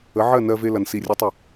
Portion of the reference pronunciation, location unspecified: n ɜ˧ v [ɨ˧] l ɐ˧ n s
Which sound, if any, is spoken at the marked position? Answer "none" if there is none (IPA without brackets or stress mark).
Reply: e˧